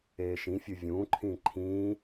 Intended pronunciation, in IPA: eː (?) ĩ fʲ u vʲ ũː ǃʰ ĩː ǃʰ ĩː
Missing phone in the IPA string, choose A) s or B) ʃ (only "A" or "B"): B